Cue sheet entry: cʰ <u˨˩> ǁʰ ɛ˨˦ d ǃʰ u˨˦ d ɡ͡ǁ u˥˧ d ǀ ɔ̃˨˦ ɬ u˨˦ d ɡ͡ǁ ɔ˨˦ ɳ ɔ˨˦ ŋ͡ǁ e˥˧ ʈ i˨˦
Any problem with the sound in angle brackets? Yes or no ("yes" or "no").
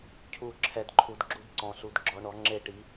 no